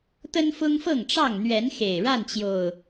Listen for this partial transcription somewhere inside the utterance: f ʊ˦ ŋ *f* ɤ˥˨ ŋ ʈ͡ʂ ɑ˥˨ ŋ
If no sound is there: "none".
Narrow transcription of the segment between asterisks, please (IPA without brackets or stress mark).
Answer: f